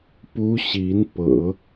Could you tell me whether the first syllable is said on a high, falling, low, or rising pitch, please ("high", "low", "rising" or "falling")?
high